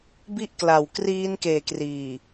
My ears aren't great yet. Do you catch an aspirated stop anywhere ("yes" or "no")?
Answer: no